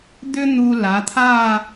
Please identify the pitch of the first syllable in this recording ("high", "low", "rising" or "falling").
high